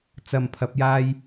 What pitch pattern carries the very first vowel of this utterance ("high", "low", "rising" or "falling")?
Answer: low